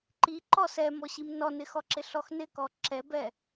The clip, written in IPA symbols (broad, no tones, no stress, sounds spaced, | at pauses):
ǃ i ǃ ɔ s ɛ m ɔ ɕ i m n ɔ n ɪ x ɔ ǁ ɪ ɬ ɔ x n ɪ k ɔ ǁ ɛ b ɛ